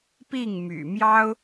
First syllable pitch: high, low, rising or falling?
falling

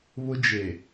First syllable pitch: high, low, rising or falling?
high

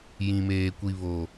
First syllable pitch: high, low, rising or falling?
low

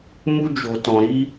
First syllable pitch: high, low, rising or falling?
high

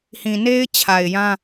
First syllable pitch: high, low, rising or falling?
low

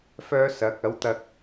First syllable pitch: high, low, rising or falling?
high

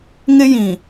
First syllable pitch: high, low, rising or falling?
high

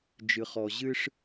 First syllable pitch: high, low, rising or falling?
low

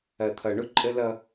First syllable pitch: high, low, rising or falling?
low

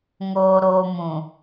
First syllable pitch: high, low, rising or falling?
low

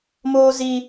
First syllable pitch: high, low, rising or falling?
high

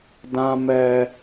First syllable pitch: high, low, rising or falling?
high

